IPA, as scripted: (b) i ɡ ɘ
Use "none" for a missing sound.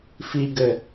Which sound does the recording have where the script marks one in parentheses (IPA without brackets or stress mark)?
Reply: f